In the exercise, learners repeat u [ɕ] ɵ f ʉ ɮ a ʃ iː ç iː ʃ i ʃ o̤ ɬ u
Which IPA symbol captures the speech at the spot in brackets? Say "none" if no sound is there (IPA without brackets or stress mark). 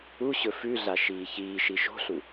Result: ɕ